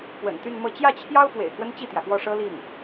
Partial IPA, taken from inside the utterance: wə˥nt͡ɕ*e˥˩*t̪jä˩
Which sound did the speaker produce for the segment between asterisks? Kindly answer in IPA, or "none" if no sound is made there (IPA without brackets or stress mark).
i˥˩